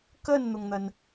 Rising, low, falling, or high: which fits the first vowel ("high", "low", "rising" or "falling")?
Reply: falling